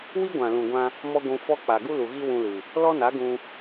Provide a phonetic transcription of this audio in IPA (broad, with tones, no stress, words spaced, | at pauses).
wi˦ɡʷã˨ lũ˨ɡʷã˧ | mɔ˦ɡʷũ˧fɔ˦ k͡pa˨ɡu˦lu˨ ɣi˦wũ˧ lɨ˨ | lɔ˦na˨˦ɡũ˧